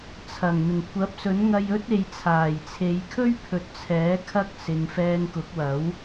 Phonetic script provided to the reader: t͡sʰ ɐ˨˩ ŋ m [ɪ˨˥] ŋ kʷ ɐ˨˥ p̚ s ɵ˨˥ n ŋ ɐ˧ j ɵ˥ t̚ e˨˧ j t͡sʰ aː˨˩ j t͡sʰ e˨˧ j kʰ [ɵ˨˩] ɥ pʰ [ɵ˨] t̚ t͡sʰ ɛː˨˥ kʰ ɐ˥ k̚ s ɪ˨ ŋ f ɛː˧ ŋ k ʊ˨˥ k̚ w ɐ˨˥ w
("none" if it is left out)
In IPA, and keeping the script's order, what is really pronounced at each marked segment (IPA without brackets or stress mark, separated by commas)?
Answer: ɪ˨˩, ɵ˥, ɵ˨